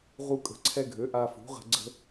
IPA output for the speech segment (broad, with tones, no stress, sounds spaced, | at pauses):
ʁ u˧ kʼ ə̤˩˥ ǀʰ ɛ˧ ɡʱ ø˩˥ ʔ a˧ f ṳ˩˥ ʁ ə̤˧ ɡ͡ǀ ə̤˧